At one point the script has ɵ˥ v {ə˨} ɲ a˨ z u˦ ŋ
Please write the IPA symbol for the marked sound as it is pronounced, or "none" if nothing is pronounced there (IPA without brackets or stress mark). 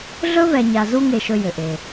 ɛ˨